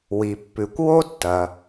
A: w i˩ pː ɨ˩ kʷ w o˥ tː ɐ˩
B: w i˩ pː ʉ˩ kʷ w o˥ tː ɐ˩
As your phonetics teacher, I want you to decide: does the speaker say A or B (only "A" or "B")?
B